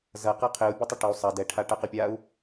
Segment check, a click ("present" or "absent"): absent